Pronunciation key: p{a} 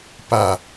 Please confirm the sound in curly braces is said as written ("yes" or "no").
yes